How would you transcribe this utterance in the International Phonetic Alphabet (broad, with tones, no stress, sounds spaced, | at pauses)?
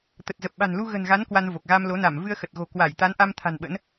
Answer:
t̪ ə˨˩ t̚ z ə˨˩ p̚ ɓ a̤˨˩ n l u˧ ɣ ə̤˨˩ n ɣ a˨˦ n k w a˧ n v o˨˩ k̚ ɣ a˧ m l o˨˦ n a˧˩ m v ɨ˧ ə̯ x ə˨˩ t̚ ɣ o̤˨˩ k w a˧˩ j t̪ a˨˦ n ʔ a˧ m t̪ʰ a̤˨˩ n ɓ ə̰˧˥ n